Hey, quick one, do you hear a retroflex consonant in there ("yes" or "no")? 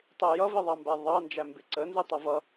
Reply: no